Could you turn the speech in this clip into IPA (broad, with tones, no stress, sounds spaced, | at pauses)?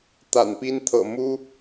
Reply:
t̪ a̰˨˩ n p i˦ n t̪ʰ ɤ̰˨˩ m u˦